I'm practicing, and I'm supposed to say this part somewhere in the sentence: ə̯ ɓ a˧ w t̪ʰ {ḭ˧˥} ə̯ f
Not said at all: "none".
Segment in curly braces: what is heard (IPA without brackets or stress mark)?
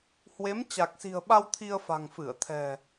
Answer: i˧